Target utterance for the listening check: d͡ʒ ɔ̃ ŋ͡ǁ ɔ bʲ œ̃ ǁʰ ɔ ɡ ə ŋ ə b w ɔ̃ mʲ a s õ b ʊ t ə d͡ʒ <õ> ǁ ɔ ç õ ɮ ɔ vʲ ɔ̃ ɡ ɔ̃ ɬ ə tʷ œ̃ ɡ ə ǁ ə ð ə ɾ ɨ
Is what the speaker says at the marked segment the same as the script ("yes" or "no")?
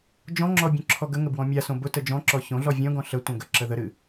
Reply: no